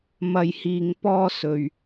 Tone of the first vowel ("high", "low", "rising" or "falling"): low